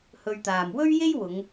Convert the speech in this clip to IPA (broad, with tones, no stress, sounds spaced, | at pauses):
h ɵ˧ ɥ t̪ aː˨ m w ɵ˥ ɥ j e˥ j w ʊ˨˧ ŋ